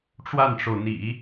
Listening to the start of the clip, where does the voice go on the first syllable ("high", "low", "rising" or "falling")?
falling